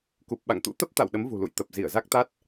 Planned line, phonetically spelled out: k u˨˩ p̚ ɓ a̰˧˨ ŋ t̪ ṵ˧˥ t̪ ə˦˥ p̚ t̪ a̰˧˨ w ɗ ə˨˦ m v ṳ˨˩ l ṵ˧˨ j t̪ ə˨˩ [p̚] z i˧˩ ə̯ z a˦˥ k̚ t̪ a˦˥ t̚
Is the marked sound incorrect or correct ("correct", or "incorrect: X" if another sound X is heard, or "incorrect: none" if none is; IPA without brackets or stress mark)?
correct